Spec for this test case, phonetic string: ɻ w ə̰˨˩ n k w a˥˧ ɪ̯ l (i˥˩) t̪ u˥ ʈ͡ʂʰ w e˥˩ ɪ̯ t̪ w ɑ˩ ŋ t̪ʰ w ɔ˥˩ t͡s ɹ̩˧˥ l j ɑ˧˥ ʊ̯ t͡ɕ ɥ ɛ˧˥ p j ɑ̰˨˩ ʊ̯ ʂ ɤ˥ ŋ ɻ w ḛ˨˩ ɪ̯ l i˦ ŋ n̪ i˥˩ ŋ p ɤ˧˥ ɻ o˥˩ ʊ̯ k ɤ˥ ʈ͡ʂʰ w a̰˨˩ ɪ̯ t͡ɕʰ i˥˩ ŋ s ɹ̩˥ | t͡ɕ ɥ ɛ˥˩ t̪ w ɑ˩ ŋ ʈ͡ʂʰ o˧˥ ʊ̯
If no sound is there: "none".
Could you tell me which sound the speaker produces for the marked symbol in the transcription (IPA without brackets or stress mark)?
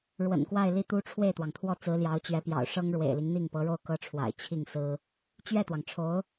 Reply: i˥˩